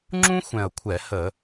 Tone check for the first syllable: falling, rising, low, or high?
high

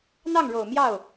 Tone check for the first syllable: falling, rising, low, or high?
falling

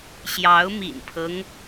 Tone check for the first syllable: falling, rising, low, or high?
rising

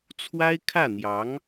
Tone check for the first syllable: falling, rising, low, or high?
high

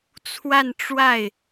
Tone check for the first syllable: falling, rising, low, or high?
falling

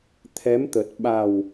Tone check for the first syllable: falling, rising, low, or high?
rising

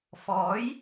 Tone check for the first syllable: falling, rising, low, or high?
rising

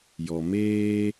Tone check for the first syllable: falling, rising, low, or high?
low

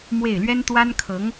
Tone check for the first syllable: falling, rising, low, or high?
falling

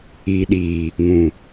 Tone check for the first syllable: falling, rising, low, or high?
low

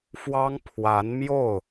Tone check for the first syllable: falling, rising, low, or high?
high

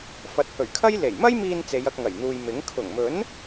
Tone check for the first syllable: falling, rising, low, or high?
rising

